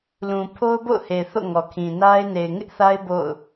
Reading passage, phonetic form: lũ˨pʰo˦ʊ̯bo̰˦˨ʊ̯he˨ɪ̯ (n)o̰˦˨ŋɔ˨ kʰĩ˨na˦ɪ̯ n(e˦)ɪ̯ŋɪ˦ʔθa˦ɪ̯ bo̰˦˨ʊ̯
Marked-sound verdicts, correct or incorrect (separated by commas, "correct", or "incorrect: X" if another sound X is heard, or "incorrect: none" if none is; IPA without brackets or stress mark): incorrect: θ, incorrect: e˨